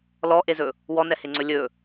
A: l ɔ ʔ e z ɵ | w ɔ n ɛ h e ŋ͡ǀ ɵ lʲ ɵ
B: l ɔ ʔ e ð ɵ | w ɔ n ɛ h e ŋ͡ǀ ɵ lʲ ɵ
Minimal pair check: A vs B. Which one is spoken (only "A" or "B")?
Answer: A